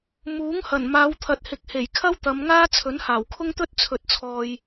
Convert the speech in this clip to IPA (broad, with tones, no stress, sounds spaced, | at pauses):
m uː˨˥ ŋ h ɐ˨˩ n m aː˨˧ w t̪ʰ ɐ˨ t̚ h ɪ˨ k̚ h e˨˩ j kʰ ɐ˥ w t̪ ɐ˨˧ m ŋ aː˥ t͡sʰ ɵ˨˥ n h aː˨˩ w kʰ ʊ˥ ŋ t̪ ɵ˥ t̚ t͡sʰ ɵ˨˥ t̚ t͡sʰ ɔː˨ j